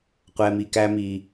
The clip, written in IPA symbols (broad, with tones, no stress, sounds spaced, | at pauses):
qʷ ɛ˨ m i˨ k æ˧ m i˨